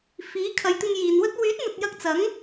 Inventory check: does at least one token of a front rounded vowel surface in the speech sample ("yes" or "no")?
yes